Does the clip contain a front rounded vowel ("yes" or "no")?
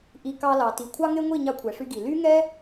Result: yes